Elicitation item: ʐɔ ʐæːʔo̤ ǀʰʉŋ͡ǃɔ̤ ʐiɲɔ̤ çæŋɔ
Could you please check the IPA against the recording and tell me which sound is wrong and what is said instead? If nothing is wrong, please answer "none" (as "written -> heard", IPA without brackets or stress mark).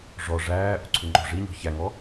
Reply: none